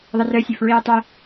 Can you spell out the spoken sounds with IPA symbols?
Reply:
ðˤ ə r œ sʲ ø f ɹ iː tˤ œ

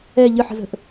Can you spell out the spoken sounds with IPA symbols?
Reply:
ɛ ʎ ɨ ħ ə̤ z ə̤ ʔ

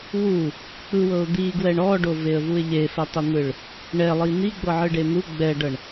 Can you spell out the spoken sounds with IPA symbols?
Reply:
w u | k͡p ɯ w ɤ ʊ̯ d̪ i ɡ w ɛ ɳ ɔ ɖ o v e ə̯ v u ɪ̯ ʎ e f ɛ tˤ i n̪ ɯ ɭ | ɳ ɛ lˠ i n̪ i ɡ͡b ɤ ʕ ɯ ɖ e n̪ u ɡ͡b ɛ ɖ ɤ ɳ

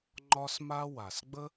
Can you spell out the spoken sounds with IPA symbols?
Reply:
ŋ͡ǃ ɒ˥ s m a˥ w a˩ s ɡ͡b ə˥

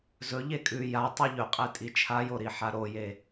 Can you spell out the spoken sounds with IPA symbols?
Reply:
z ɵ ʎ e kʼ ʉ j a tˤ i ʎ ɵ qʼ e tʼ i t͡ʃʰ a j o ɾ i ħ a ɾ o j e

